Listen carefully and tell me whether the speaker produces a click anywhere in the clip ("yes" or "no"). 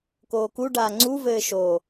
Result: yes